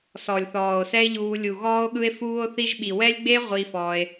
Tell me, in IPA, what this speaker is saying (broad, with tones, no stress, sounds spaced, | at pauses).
s ɔ˨ lʲ θ ɔː˨ o̯ s ɛ˦ e̯ ʎ uː˧ lʲ u˨ ɣ ɔː˧ o̯ ɠ ɯ˧ e̯ f uː˧ o̯ θ i˧ ʒ ɓ i˨ w ɛ˦ lʲ ɡ͡b e˦ ʁʷ i˧ f ɔː˧ e̯